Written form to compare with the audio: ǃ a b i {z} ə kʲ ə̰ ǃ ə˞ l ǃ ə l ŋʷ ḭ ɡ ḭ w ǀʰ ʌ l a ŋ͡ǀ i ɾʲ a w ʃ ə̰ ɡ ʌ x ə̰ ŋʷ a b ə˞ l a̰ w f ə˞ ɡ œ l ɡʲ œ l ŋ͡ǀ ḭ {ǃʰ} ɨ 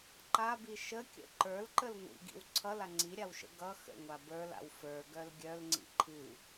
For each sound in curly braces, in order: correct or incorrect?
incorrect: ʃ, correct

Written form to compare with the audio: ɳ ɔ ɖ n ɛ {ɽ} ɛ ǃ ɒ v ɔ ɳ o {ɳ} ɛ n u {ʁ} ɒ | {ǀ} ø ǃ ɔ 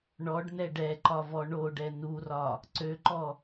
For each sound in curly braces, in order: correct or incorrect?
incorrect: ɖ, incorrect: ɖ, incorrect: r, correct

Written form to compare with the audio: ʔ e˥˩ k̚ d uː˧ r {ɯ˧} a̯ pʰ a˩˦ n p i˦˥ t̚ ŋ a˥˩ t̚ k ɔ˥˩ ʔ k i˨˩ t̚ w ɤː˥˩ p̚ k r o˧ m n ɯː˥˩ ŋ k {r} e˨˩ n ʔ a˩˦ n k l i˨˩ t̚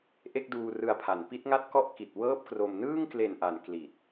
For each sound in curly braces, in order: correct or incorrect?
correct, incorrect: l

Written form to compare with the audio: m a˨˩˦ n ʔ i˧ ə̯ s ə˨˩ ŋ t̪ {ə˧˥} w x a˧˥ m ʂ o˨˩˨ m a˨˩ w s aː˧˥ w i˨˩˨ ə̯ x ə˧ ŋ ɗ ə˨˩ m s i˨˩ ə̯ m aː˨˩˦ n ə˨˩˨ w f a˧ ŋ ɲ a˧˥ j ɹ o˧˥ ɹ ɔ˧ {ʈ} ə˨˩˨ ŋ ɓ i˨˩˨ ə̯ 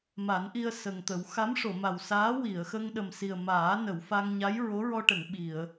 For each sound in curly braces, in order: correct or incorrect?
incorrect: ə˨˩˦, correct

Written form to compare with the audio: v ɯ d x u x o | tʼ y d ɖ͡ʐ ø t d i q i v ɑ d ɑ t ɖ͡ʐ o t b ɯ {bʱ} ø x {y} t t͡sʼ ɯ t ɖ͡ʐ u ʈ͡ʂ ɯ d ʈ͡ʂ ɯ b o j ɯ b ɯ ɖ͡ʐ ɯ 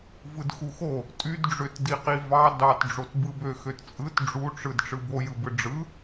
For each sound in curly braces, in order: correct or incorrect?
incorrect: b, incorrect: ø

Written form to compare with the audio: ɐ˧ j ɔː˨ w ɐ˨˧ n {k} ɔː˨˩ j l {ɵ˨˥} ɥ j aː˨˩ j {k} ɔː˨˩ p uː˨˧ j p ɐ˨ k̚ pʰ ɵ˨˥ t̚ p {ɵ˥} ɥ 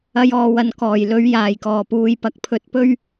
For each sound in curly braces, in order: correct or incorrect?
correct, correct, correct, correct

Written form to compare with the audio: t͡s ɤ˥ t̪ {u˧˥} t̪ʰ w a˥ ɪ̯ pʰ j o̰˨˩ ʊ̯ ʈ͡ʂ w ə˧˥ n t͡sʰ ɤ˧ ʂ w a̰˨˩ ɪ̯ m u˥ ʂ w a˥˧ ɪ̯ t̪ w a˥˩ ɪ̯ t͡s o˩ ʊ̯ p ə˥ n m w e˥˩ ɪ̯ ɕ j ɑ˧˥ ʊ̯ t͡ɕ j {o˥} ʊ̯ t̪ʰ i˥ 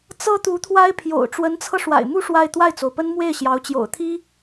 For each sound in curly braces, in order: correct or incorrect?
correct, incorrect: o̰˨˩

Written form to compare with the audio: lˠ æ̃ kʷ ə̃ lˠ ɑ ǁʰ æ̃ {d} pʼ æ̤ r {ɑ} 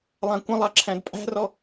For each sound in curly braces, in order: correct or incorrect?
correct, incorrect: ɔ

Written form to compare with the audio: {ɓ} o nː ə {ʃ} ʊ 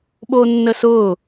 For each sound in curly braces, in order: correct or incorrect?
correct, incorrect: s

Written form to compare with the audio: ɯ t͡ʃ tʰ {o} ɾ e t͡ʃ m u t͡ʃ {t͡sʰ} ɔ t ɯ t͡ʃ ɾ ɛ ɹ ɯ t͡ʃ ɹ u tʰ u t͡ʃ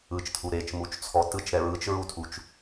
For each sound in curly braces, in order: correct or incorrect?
incorrect: u, correct

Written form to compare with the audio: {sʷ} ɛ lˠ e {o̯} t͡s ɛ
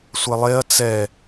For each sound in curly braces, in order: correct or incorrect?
correct, incorrect: ɐ̯

